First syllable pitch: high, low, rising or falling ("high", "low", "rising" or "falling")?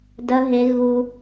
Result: high